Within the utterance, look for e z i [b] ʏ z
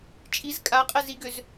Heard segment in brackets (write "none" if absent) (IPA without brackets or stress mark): ɡ